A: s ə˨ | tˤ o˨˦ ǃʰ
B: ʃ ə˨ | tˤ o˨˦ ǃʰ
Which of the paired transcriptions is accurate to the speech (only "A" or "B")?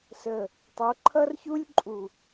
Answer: A